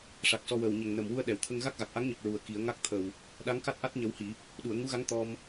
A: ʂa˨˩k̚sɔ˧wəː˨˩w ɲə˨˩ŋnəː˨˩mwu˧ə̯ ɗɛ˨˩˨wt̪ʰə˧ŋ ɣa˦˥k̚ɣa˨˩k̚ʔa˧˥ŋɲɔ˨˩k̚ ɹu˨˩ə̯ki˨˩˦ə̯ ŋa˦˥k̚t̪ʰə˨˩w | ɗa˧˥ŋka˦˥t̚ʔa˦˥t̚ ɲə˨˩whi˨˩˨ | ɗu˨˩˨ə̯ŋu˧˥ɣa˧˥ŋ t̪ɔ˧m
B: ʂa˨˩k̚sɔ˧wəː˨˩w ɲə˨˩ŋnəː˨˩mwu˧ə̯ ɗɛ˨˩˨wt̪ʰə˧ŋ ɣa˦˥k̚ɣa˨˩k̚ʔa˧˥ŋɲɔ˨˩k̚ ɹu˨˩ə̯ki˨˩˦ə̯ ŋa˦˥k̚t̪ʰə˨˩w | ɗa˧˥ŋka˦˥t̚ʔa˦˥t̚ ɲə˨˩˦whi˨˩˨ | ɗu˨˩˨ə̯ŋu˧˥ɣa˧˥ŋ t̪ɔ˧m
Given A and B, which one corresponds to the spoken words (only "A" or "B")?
B